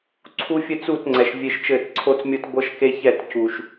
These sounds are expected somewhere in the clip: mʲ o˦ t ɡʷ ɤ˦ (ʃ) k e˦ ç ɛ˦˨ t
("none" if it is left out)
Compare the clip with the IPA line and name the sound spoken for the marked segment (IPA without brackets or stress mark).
ʃ